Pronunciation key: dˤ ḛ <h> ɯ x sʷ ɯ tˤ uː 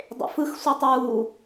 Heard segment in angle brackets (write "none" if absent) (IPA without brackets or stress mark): f